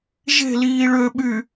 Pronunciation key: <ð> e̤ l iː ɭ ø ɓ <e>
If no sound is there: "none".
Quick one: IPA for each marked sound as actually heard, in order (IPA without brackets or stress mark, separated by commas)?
ʒ, y